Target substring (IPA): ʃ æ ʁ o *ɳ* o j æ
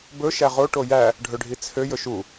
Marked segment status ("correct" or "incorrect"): incorrect